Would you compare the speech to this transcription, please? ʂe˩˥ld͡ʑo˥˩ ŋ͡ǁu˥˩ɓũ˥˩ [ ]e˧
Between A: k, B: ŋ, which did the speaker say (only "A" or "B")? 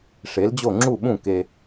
A